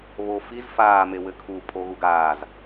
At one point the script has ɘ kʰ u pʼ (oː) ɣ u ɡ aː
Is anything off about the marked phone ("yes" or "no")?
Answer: yes